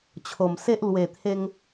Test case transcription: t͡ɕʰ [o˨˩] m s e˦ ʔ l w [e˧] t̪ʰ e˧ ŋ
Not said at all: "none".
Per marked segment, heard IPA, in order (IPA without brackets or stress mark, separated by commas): o˨˩, e˨˩